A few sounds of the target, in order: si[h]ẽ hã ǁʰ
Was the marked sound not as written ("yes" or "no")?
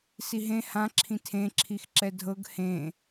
yes